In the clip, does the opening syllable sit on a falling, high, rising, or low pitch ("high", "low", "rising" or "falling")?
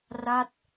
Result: falling